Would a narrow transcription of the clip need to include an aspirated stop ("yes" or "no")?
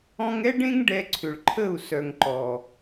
yes